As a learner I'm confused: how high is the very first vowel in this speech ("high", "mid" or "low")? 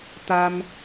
low